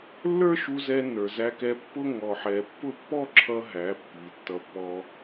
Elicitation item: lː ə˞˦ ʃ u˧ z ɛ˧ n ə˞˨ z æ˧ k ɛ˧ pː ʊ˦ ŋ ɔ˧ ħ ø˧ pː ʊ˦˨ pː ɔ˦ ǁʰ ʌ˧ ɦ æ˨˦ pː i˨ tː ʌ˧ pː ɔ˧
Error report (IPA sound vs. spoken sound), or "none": ø˧ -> ɛ˧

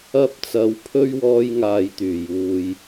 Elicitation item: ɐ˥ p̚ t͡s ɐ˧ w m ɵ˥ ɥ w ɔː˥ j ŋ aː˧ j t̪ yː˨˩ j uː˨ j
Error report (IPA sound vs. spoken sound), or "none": m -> pʰ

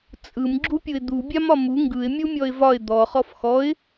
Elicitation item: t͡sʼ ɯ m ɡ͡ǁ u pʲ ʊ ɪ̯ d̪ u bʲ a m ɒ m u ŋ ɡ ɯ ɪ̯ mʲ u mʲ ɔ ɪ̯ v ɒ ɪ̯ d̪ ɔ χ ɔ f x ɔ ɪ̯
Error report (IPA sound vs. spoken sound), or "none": none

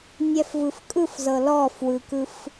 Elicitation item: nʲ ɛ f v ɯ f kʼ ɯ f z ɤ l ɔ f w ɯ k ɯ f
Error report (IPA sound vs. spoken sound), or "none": none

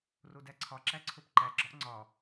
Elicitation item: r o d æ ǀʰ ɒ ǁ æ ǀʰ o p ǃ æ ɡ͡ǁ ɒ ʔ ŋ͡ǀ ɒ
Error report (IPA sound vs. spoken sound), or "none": none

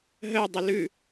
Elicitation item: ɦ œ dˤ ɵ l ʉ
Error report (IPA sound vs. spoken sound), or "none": none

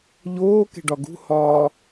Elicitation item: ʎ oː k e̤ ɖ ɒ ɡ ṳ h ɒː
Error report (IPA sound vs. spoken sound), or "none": none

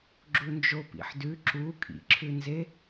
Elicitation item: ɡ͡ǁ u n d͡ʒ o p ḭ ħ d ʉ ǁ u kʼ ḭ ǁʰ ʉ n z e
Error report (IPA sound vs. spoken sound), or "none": none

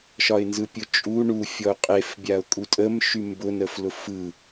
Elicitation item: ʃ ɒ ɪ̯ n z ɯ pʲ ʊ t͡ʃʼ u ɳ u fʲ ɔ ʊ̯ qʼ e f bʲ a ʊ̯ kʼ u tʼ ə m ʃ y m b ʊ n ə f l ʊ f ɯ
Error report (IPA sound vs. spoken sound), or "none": none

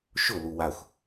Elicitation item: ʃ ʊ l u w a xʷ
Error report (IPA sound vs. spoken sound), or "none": none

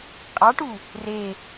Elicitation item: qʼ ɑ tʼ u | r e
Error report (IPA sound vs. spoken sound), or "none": tʼ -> ʈ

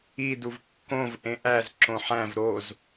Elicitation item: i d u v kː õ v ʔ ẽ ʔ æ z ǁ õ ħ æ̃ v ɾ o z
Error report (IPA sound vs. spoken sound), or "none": none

